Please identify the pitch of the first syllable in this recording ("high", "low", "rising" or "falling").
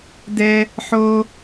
high